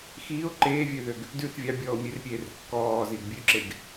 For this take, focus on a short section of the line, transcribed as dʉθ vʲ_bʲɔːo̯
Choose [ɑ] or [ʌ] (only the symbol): ɑ